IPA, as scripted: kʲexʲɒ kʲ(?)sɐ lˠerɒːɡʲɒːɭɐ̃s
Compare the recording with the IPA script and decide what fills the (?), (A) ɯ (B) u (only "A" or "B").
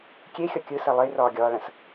A